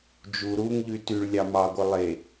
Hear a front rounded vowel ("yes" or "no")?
yes